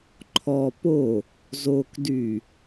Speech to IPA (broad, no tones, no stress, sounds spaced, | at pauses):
ǃʰ ɔ p o | z o k d y